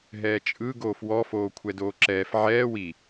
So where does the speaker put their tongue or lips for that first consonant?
throat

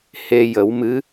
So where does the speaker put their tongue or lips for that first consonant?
throat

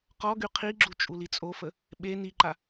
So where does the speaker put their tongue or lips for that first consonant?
uvula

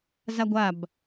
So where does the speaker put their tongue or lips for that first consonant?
tongue tip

